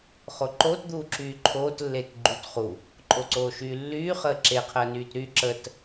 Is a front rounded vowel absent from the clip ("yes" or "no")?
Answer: no